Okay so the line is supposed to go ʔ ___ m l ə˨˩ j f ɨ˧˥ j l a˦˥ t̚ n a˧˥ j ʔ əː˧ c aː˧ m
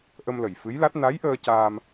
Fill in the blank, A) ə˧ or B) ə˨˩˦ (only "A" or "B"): A